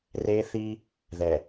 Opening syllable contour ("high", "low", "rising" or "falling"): high